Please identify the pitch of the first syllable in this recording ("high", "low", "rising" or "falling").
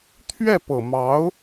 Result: falling